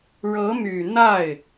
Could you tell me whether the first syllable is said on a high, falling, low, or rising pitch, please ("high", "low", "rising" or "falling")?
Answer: rising